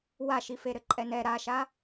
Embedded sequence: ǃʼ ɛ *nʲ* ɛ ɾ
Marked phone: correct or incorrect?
incorrect